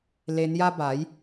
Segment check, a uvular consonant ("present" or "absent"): absent